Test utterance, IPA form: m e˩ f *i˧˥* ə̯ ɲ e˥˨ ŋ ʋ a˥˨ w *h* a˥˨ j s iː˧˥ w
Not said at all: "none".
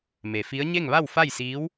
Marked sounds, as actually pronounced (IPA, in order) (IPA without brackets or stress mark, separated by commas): i˧˥, f